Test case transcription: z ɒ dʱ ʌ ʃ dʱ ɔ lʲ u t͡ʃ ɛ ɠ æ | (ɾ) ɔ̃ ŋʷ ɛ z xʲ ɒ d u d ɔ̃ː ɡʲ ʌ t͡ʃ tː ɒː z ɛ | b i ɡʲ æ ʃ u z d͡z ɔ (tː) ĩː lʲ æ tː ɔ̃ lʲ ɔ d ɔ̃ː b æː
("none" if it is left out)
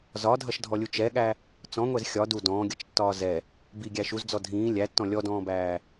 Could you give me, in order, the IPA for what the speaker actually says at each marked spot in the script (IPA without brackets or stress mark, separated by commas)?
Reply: t͡s, dʱ